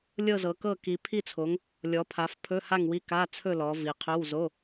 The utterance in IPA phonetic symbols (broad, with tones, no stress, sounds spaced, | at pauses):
lʲ ɤ˥˨ z ɤ˨˦ k ɤ˥˨ k i˨˦ pʰ i˥˨ t͡sʰ o˨˦ ŋ | lʲ ɔ˨˦ pʰ a˨˦ f pʰ ɵ˧˥˧ h a˥˨ ŋ w i˧˥˧ k a˧˥˧ t͡sʰ ɵ˥˨ l ɔ˨˦ v i˨˦ qʰ ɵ˧˥˧ w z o˧˥˧